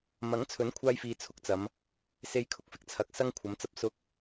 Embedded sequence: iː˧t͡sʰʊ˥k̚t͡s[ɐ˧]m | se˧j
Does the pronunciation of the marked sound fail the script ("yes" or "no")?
yes